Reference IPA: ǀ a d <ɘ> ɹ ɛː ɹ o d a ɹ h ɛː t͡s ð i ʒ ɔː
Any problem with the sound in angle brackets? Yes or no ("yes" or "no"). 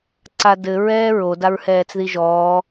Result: no